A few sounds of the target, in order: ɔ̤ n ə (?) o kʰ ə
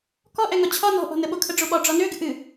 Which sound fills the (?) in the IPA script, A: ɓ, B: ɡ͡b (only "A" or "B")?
A